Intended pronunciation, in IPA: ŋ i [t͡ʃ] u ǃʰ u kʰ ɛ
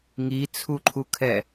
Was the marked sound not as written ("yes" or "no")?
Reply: yes